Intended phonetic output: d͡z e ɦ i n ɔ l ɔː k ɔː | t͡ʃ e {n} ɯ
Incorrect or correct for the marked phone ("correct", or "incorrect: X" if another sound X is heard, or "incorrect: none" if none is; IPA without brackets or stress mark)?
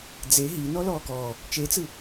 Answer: incorrect: t͡s